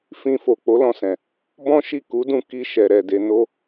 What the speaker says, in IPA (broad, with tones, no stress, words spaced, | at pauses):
fĩ˧fo˨ k͡po˨˦lɔ̃˧sɛ̃˨ | bɔ̃˦ʃi˦˨ ku˨˦dũ˧ ki˧ ʃɛ˨ɾɛ˨de˧ no˦